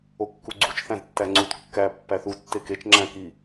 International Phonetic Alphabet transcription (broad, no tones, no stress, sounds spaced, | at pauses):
o kː u ɡ͡ǀ u t͡ʃ θ æ̃ z tː æ ŋ͡ǀ u t kː æ pː æ θ u tː e k e t͡ʃ ŋ͡ǁ æ̃ k i